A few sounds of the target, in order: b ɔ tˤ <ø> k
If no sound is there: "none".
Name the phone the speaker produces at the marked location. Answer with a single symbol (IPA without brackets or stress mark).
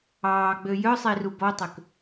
ø